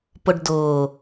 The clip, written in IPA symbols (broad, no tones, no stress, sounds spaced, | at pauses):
p ʊ ɖ d ʊː